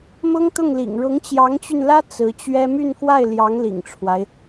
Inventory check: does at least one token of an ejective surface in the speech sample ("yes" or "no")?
no